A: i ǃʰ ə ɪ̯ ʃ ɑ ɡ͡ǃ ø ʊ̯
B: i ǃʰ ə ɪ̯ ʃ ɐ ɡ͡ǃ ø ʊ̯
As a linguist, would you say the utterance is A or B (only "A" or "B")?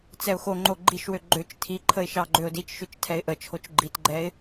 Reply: A